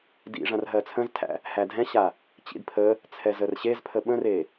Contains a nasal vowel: yes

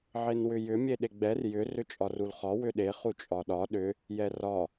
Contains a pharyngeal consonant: yes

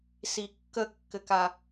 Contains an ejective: no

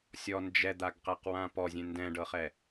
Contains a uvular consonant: yes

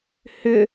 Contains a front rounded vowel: yes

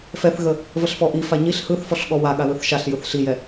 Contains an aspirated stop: no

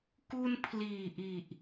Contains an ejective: no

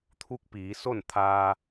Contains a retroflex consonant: no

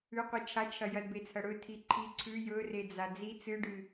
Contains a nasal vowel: no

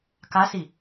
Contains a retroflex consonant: no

